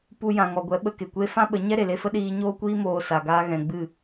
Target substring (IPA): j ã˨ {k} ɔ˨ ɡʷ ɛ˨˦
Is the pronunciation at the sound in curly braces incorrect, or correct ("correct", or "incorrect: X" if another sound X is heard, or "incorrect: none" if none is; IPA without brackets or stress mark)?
incorrect: ŋ